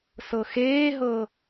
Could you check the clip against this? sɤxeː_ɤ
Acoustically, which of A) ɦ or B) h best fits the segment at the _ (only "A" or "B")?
A